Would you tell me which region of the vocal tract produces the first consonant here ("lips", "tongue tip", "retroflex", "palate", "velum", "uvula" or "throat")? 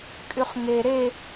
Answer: velum